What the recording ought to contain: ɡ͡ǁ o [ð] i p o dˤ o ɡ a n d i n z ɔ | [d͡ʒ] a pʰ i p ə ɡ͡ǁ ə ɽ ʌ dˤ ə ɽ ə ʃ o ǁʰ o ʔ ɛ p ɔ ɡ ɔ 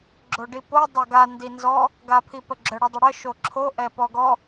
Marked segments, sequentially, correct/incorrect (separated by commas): incorrect, incorrect